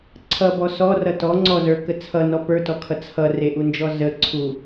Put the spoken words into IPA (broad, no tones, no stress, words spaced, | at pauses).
ǀʰʌbɔ sɔrʌ tɔ ŋ͡ǀɔzə˞kə t͡sʰʌnɔ pə˞tɔkʰʌ t͡sʰʌreʔund͡ʒɔ zəǀʰu